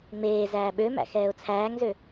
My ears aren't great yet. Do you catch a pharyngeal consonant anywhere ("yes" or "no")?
no